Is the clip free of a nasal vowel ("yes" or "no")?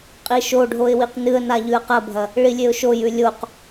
yes